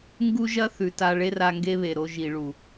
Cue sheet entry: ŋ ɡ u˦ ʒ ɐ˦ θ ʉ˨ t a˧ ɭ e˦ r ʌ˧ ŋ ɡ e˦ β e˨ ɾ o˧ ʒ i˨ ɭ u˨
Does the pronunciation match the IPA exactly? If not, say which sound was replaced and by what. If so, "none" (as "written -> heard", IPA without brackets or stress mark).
ʌ˧ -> a˧